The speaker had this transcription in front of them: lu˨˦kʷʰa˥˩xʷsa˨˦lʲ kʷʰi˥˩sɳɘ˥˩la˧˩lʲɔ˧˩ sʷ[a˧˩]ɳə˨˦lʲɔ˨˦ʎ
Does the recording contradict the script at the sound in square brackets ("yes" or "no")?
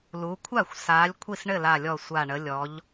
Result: no